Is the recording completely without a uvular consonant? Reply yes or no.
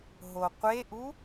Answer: no